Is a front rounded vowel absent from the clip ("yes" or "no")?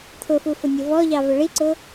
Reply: yes